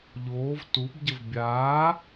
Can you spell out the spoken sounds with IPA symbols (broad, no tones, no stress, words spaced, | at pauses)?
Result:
ʎoːv tubɟəv bʲaː